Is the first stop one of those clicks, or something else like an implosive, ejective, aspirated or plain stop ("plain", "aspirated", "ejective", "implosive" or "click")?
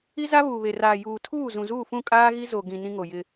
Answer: aspirated